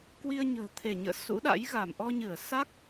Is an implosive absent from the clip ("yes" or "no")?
no